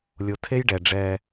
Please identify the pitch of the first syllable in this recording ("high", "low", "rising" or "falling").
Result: low